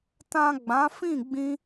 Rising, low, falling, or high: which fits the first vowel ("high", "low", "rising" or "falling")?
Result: low